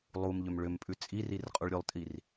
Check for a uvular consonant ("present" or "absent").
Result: present